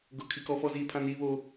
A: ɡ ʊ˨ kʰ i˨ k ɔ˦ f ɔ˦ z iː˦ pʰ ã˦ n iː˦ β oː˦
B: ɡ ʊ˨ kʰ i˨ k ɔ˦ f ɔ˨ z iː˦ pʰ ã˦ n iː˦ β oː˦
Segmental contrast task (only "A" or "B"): A